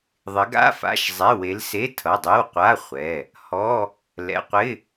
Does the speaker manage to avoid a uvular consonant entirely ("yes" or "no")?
no